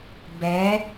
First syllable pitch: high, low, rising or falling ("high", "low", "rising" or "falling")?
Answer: rising